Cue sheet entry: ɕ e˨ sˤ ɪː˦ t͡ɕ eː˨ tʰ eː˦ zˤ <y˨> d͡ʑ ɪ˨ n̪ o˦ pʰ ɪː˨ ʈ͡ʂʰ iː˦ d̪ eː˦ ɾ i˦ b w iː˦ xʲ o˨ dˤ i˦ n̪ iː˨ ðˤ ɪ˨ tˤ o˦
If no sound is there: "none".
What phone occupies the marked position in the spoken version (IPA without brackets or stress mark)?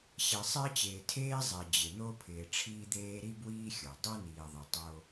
e˨